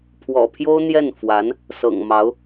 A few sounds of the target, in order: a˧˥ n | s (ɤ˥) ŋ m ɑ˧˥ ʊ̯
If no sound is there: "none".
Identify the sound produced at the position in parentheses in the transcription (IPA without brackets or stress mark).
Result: ɤ̰˨˩